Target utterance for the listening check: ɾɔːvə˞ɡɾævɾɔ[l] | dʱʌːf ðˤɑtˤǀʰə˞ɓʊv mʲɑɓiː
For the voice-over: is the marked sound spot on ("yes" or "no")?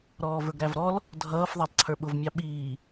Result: yes